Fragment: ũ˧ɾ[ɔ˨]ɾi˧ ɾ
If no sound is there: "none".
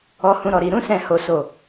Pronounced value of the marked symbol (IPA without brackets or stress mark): ɔ˨